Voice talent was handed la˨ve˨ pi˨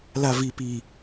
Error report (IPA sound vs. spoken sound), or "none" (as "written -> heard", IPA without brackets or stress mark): e˨ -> i˨